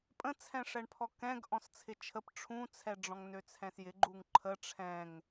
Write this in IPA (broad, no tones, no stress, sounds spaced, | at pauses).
pʼ ə̃ t͡sʰ ɛ̃ ʂ ɛ ɳ pʰ ɔ k ɛ̃ ɡ ʔ ɔ̃ s t͡sʰ ɪ t͡ʃʰ ə p ʈ͡ʂʰ ũ t͡sʰ ɛ ɖ͡ʐ ɔ̃ ŋ n ø t͡sʰ ɛ̃ s j ɪ ɡ͡ǃ u ŋ ǃʰ ə ʈ͡ʂʰ ɛ̃ ŋ